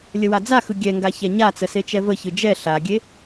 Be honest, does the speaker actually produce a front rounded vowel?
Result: no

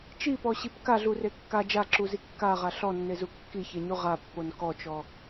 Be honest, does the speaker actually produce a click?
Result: yes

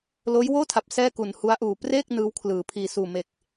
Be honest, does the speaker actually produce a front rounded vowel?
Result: no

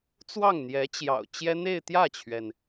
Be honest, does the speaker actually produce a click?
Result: no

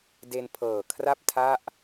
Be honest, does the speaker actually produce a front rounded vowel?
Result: no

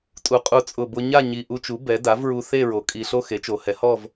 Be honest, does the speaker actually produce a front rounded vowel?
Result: no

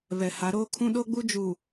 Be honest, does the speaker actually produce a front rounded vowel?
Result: no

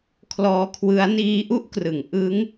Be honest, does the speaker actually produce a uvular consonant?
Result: no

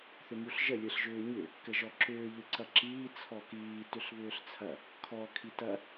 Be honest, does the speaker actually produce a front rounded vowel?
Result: yes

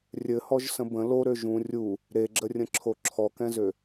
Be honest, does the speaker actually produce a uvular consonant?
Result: no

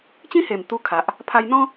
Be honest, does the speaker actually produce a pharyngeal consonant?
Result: no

